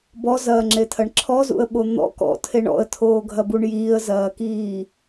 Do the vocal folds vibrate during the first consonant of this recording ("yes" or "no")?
yes